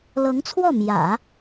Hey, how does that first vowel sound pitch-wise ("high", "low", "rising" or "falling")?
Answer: rising